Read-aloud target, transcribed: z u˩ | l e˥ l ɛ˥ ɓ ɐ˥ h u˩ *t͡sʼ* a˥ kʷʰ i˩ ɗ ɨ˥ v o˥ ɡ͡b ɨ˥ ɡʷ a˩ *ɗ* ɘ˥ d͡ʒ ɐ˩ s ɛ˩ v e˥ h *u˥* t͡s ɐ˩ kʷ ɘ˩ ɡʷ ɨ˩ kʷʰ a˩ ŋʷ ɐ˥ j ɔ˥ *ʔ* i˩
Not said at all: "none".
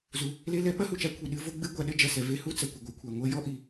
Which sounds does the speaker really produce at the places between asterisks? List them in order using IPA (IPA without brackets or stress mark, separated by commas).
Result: t͡ʃ, ɗ, u˥, ʔ